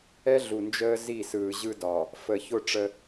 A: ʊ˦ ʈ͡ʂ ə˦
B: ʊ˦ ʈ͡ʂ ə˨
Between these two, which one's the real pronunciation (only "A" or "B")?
A